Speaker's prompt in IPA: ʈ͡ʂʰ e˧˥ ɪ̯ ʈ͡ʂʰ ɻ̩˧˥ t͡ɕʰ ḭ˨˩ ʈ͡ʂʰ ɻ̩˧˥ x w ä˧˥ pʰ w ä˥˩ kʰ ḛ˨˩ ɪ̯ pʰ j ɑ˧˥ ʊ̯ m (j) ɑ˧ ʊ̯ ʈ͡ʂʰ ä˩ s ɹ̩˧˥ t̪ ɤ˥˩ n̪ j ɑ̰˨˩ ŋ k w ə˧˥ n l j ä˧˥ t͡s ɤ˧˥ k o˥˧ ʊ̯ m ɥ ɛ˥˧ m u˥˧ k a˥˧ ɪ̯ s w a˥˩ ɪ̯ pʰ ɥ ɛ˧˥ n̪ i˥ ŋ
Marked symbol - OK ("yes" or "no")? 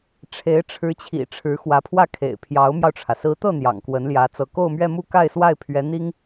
yes